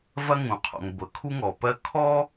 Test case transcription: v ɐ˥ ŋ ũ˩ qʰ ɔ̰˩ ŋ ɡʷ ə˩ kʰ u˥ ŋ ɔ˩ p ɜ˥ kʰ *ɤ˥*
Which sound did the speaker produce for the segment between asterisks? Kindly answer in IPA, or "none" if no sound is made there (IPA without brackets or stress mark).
ɔ˥